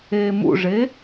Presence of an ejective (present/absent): absent